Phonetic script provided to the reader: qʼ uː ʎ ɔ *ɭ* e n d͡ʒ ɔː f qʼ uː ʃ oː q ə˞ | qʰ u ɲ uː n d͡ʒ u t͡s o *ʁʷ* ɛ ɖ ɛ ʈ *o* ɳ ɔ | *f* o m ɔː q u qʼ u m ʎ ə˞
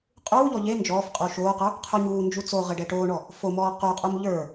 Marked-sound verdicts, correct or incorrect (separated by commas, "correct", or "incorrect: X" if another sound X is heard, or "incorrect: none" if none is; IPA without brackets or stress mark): incorrect: ʎ, incorrect: ʁ, incorrect: oː, correct